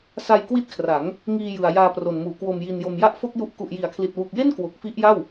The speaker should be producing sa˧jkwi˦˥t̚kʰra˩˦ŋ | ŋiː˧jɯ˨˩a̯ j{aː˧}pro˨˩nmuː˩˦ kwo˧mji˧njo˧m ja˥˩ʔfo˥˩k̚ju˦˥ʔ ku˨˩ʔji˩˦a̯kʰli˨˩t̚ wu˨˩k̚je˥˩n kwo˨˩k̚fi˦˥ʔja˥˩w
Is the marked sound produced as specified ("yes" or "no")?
yes